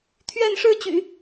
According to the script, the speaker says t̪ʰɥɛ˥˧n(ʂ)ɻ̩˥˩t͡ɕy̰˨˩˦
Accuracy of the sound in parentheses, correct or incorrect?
correct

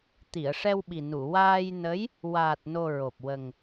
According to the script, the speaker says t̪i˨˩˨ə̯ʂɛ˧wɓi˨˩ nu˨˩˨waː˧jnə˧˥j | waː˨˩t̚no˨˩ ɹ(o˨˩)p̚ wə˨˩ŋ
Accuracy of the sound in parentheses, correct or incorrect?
correct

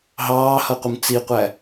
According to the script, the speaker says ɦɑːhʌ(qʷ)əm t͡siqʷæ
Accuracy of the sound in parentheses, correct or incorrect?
correct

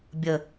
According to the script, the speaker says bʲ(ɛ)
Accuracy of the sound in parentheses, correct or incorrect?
incorrect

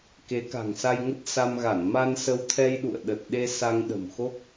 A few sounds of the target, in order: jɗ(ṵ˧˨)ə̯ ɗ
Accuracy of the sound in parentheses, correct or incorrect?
correct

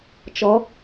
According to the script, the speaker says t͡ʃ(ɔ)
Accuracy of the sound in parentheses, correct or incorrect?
correct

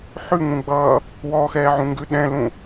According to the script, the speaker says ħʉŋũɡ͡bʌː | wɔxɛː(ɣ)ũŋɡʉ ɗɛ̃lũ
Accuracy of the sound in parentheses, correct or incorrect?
incorrect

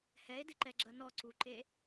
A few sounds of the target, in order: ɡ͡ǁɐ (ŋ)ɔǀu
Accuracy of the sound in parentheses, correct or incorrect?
incorrect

